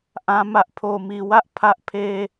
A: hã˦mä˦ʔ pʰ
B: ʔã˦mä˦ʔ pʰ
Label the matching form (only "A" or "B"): B